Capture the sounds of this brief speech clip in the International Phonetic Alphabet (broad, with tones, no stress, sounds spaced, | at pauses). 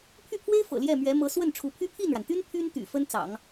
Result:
pʰ y˥˩ pʰ w e˥ ɪ̯ f ɤ̰˨˩ l j ɛ˥˩ m ɥ ɛ˧˥ m ɤ˧˥ s w ə˥˩ n ʈ͡ʂʰ u˧˥ pʰ y˥ pʰ i˥˩ n ɻ a˩ n t̪ y˥ n pʰ y˥ n t̪ y̰˨˩ f ə˥ n t͡s ɑ̰˨˩˦ ŋ